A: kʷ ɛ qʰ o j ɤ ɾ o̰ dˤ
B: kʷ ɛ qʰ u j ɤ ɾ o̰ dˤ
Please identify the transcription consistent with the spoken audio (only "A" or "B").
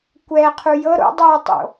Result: B